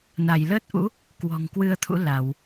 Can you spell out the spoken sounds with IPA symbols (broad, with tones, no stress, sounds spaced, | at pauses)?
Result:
n a˧˩ j l əː˦˥ t̚ ʔ ṵ˧˥ | k w ɔ̤˨˩ ŋ k w ɨ˧ ə̯ t̪ʰ ṵ˧˥ l a˧˩˨ w